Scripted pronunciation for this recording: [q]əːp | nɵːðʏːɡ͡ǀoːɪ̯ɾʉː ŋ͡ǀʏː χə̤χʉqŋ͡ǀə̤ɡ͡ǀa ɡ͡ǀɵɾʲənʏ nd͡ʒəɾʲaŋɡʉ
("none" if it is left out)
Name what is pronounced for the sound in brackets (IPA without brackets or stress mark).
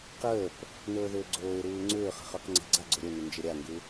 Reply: q